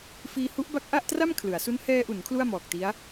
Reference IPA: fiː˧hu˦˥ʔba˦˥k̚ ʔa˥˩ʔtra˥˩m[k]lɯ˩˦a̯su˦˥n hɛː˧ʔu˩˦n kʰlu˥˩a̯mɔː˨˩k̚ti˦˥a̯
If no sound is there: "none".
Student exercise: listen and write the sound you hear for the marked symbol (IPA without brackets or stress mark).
kʰ